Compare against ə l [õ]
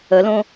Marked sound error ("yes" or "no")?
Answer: no